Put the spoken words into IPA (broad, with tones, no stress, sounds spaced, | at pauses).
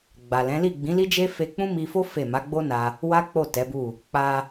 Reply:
ɡ͡b a˨ l ɛ̃˨˦ l i˦˨ ɡ͡b ĩ˨˦ l i˦ d͡ʒ e˦ f e˧ k͡p ũ˦ m i˧ f o˦ f e˦˨ m a˨˦ ɡ͡b o˦ n a˧ | w a˦ k͡p o˦˨ t ɛ˨˦ b u˦˨ | k͡p a˧